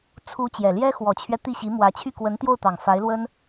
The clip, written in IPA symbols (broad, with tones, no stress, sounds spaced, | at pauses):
t͡sʰ u˧˥ t͡ɕ j ɛ˨˩ l j ɛ˥ x w ɔ˨˩ t͡ɕʰ ɥ ɛ˦ t̪ i˥˩ ɕ i˧˥ m w ä˧˥ t͡ɕʰ y˥˩ k w ə˧˥ n t̪ j o˥˩ ʊ̯ t̪ ɑ˨˩ ŋ f a˧˥ ɪ̯ l w ə˥ n